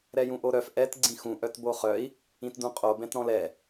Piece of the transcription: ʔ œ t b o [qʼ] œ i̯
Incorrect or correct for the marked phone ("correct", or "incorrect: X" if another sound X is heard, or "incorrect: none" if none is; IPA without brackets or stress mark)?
incorrect: χ